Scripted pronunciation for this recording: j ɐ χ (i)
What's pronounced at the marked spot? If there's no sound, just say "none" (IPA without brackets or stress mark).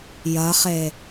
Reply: e